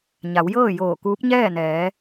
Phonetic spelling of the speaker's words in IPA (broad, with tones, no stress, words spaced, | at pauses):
ɲa˩˧wjɤː˥˨ joː˧˩kuː˧˥p̚ɲɛː˥˨nɛː˩˧